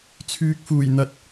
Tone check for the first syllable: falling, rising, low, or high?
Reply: low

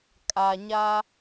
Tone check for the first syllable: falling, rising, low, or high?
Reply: low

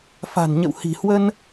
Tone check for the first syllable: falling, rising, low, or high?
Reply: low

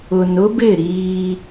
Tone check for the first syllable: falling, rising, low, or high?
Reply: low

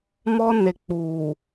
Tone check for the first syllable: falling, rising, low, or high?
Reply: high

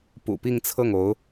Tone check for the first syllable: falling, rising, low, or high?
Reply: low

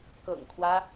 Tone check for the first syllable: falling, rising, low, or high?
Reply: low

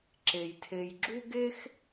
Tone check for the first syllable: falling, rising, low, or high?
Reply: low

